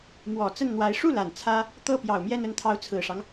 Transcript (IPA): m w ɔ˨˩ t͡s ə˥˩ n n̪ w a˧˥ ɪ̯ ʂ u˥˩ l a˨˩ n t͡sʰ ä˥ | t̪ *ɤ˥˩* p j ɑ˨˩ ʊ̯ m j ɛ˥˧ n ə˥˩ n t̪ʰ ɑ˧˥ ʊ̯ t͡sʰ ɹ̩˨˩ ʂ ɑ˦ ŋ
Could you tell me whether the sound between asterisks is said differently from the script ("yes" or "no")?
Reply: no